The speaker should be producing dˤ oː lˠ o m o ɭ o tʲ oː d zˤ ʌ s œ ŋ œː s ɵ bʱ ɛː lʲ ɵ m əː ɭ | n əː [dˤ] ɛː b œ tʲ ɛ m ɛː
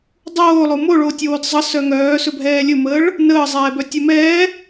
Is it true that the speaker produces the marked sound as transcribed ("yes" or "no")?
no